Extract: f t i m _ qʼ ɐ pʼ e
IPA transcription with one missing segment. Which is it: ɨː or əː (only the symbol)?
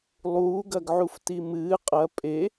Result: ɨː